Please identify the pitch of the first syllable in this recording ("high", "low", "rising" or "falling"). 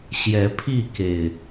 rising